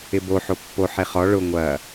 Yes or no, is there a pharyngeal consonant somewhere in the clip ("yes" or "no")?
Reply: yes